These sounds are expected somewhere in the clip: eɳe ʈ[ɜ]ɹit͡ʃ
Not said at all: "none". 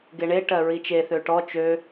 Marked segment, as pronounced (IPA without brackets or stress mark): ɜ